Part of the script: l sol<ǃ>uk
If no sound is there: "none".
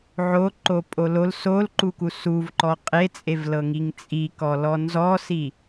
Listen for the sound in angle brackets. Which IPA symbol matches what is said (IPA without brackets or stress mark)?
ǃ